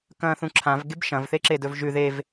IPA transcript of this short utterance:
k ɐ̃ː θ ũ ǁʰ ã v ɡ e b ʃ ɐ̃ v θ e ǁ e d ɵ v ʒ ʉ ð e v

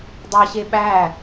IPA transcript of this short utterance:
dˤ ɑ ɕ e ɓ æ

